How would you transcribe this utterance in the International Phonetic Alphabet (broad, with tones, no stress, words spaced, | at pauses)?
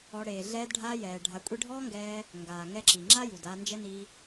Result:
ɔ˧ ɽeː˨ɮɛː˧d ɖʱaː˧jɛː˨ ɖʱa˧kʷʼi˦ ɖʱɔː˦ŋɡɛː˧ | ŋɡaː˨ŋɛ˧ǁi˨ ŋ͡ǁa˦ju˨daː˧nd͡ʒɛ˦ ni˦